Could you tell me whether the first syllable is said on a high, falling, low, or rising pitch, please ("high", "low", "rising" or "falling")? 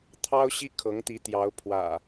high